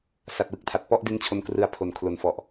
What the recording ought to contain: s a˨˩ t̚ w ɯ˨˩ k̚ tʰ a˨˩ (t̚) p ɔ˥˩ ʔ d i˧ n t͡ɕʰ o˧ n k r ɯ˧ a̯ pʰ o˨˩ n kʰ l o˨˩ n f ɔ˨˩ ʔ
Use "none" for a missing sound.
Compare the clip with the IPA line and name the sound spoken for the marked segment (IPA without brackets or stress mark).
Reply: t̚